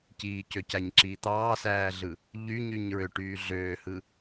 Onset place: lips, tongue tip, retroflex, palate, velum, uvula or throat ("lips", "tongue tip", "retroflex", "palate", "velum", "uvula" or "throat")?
palate